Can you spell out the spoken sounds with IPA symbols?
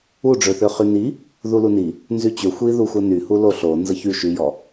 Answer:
u ɖ͡ʐ ø θ ø χ y n i | ð u l u n i | n z y t͡ɕ ø xʷ i ð u xʷ ə n y h u l o ɬ o n z ə ç y ʃ y j ɔ

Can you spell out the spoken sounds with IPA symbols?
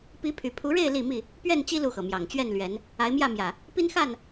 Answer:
p i˨˦ pʰ y˨˩ pʰ u˨˦ ɻ e˥˨ ɪ̯ l i˥˨ m i˥˨ | p ɥ ɛ˥˨ n t͡ɕ i˦ l u˥˨ x ɤ˩ m j ɑ˨˩ ŋ t͡ɕ ɥ ɛ˥˨ n l ɥ ɛ˨˦ n | a˨˦ ɪ̯ m j ä˥˨ m j ä˨˩ | p i˦ n x a˥˨ n

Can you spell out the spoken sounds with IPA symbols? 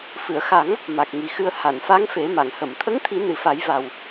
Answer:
f ɨ˨˩˨ ə̯ x a˨˩˦ ŋ | m a˨˩ k̚ ŋ i˨˩ x ɨ˧ ə̯ h a˨˩˨ n f a˧˥ ŋ f e˨˩˦ m a˨˩˨ ŋ h ə˨˩˨ m t̪ʰ ə˧˥ ŋ t̪ʰ i˨˩˦ n ɨ˨˩ f a˨˩˦ j v a˨˩ w

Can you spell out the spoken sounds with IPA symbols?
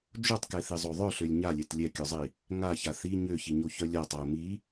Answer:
d͡ʒ o tˤ k ɛ θ i zˤ o ðˤ œ ɬ ø lʲ ɲ a lʲ ɛ t lʲ ɛ kʲ œ zˤ i | ŋ a ç a θ i ɲ ø ç i ɲ o ç œ lʲ a tˤ a ʊ̯ m i

